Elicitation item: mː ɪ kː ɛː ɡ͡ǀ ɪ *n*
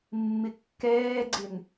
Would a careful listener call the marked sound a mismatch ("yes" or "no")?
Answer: no